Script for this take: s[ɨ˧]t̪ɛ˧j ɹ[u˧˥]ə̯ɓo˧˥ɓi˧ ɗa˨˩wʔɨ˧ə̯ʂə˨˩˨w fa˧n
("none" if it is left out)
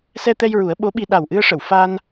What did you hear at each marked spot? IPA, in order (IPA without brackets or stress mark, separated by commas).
ɛ˧, u˨˩˦